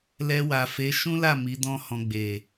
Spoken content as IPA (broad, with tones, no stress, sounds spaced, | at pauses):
l ɛ˧ w a˨ f e˨˦ ʃ ũ˦ l a˦˨ m i˨˦ d ɔ̃˦ h ɔ̃˧ ɡ͡b e˨